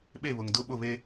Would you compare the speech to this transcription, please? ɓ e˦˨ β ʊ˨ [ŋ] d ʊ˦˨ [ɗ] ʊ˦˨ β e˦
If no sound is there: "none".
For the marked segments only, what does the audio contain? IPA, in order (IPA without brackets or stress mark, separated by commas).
ŋ, ɓ